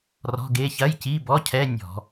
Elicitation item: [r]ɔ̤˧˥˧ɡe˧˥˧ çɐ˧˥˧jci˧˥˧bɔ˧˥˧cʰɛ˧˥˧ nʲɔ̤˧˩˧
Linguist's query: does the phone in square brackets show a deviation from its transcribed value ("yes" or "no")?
no